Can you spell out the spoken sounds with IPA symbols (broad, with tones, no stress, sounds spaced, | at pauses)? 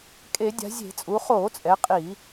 kʼ e˧˩˧ dʲ a̤˩˧ zʲ e̤˧˩˧ t͡sʼ u˩˧ χ oː˧˩˧ t͡sʼ ɛ˩˧ qʼ i˧˩˧